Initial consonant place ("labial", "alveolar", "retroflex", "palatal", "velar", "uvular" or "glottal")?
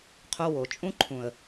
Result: uvular